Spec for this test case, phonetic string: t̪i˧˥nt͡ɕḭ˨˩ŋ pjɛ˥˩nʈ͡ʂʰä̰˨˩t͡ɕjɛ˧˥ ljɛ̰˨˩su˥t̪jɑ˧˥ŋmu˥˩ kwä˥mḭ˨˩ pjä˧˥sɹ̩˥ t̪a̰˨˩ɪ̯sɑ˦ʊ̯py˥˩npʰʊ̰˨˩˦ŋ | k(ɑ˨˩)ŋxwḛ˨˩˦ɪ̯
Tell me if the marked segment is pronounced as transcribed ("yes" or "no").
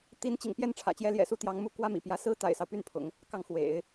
no